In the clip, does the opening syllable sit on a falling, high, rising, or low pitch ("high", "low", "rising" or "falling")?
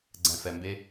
low